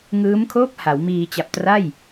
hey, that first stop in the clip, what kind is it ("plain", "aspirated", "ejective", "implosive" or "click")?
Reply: aspirated